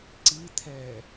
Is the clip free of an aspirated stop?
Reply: no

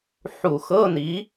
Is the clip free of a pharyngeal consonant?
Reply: no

